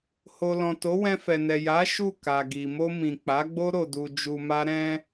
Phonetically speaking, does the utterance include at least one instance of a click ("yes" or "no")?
no